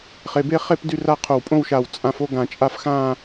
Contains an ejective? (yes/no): yes